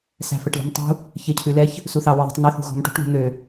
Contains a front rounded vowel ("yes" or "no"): yes